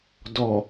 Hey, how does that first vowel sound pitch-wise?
low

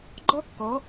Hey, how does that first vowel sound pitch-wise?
high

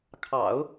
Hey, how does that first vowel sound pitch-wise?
low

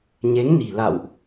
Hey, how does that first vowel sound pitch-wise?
rising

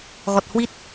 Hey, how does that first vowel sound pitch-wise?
low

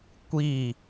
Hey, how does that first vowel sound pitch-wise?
falling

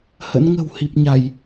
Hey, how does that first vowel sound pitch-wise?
rising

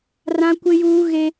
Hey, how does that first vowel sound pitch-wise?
high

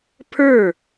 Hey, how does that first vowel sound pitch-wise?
falling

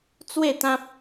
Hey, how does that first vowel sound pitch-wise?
falling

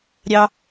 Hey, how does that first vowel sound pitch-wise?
high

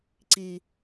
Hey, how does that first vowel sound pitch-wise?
low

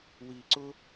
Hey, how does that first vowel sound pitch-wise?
low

